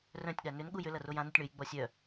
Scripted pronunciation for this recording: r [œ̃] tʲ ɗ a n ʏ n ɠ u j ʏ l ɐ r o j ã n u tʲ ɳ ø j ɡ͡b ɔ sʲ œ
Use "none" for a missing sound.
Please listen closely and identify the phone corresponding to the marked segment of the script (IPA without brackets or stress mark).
œ̃